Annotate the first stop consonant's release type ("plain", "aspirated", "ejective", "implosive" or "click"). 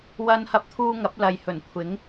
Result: plain